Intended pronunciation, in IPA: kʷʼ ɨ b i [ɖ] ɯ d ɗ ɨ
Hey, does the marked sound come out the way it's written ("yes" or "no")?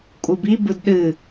no